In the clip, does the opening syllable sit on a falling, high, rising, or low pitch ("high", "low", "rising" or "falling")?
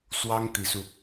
high